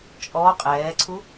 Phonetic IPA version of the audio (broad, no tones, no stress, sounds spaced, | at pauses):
t͡ʃʼ ɔ qʼ ɛː ǀʰ u